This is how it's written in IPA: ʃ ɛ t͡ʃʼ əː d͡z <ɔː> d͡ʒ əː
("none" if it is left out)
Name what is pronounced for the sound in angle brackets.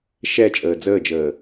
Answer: əː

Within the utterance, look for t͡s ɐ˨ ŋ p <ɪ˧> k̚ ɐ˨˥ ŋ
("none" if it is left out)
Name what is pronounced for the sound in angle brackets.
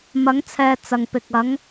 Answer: ɪ˨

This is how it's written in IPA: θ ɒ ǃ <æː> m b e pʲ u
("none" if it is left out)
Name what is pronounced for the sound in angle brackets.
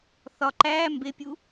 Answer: æː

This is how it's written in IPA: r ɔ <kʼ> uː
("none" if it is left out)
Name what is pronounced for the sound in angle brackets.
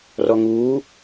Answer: ŋ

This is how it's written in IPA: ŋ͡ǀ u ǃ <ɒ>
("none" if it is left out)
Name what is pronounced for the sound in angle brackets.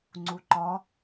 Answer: ɒ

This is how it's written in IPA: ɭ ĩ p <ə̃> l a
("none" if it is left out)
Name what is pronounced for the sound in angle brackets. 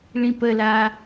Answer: ə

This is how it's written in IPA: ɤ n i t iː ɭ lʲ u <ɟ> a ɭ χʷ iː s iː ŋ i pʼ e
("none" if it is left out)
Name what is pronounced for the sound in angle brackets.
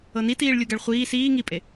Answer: ɡ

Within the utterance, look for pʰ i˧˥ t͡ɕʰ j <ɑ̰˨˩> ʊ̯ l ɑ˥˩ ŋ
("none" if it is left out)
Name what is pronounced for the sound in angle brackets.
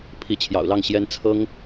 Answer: ɑ̰˨˩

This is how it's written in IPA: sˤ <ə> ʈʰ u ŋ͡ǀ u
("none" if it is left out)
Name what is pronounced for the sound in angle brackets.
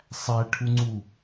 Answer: æ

